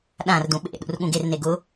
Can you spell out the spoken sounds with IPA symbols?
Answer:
ɗ ã r d ũ ɓ ḛ ɗ ṵ r ɠ ũ ɡ e r n e ɡ ʊ

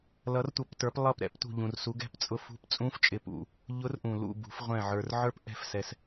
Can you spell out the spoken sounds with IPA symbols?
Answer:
l ʌ˩˧ r tʷ ʌ˩˧ p t ə˞˩˧ p lˠ ʌ˧˩ p ɾ ɛ̰˧˥ p t ṳ˧˩ ʎ ũ˩ r s u˩˧ ɡ ɛ̤˧˥ p t͡sʼ ʊ˧˩ f ṳ˧˥ p t͡sʼ ũ˧˥ f t͡ʃʼ ɪ˩˧ p ṵ˩ | ʎ ʊ˧˥ r ʔ ũ˩ l ṵ˧˩ b ṳ˩˧ f ʁʷ ɛ̃˧˩ ʕ ə˞˩ r ʕ ə˞˧˥ p ʔ ɛ̤˧˩ f s ɛ˩ s

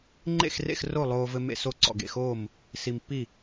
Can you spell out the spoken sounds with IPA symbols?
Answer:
ŋ͡ǃ ḛ˦˨ x r ḛ˦˨ x r o˦˨ lˠ oː˨ v ɘ˨ m ḛ˨ s o˨ ǀ ɔ̰˨ ɡ ḛ˨ x oː˦˨ m | s i˨ m pː i˦˨

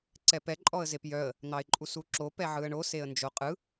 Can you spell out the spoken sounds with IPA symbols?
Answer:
ǀ ɛ p ɛ ǃʼ ɔ ə̯ z e p j œ ə̯ | n̪ ɑ ɪ̯ ǃʼ u s u ǁ o p ɛ ʕ ɯ ə̯ ɳ o s e ə̯ n d͡ʒ o qʼ ɯ

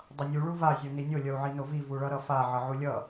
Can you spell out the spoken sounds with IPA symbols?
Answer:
dˤ ʌ nʲ u ɭ u v a zʲ o n i nʲ o lʲ ʌ u̯ ʕ i n o v i v u ɭ ʌ ɾ ʌ f a ʕ ʌ ʕ u lʲ ʌ

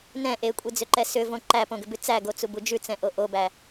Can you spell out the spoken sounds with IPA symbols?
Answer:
n ɛ̃ ʔ e kʷʼ e d͡z ʏ ǃ ɛ s ʏ v õ ǃ æ p õ ɡ ʏ b ʉ t͡s æ ɡ o t͡s u b u d͡ʒ ʉ t͡s ɛ̃ ʔ o ʔ o b æ

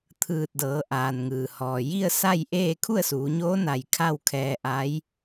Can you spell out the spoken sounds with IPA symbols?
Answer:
t̪ʰ ɯː˧˩ t̚ d ɤː˩˧ ʔ aː˩ n ŋ ɯː˩ h ɔː˩ j i˥˨ ə̯ s a˥˨ j ʔ eː˥˨ kʰ u˥˨ ə̯ s uː˩˧ ɲ oː˧˥ n a˧˩ j kʰ a˥˨ w kʰ ɛː˧ ʔ a˧˥ j

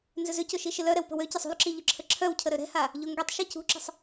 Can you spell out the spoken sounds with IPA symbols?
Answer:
n z ʏ z ʏ c ʊ ʃ i ʃ ɪ l œ ɾ ɛ w p ə̤ w ø c ɐ sˤ ṳ l ǁ i ʎ ʊ ǁʰ ə ǁʰ œ w cʰ ə ɾ ø ɾ ɛ̤ h a | ʎ o ŋ ɡ ɛ tˤ ʃ ɛ c ṳ ǁ ə̤ sˤ

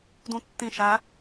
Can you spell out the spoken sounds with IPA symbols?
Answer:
d ũ tː ĩ ʃ æ

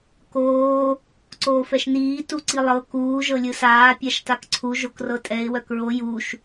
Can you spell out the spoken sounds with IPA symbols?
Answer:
k oː | ǀ oː f ɛ ʃ n iː t u ǀ i lˠ ɤ k uː ʒ ɤ lʲ ɯ s aː pʲ a ʃ t a k ǀʰ u ʒ o k r ɤ tʼ ɛ ɪ̯ w œ k ɹ o j u ʃ

